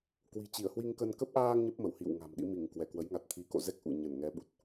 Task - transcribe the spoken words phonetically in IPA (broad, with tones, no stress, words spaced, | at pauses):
kwi̤˨˩t͡ɕi˧˩ə̯hwi˧ŋ kə˧n kə˦˥p̚ʔaː˧ŋ ɲə˦˥p̚mə˧˩whḭ˧˨w ŋa̤˨˩mɗḭ˧˥ mi˧˩ŋ kwɛ˧˩kwə˨˦jŋa˨˩t̚ t̪ʰi˨˦ko̰˧˨zɛ˦˥k̚ ʔṵ˧˨ ɲə˧˩n ŋɛ˨˦ɓu˨˩t̚